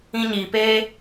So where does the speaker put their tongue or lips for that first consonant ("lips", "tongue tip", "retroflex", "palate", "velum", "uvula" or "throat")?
palate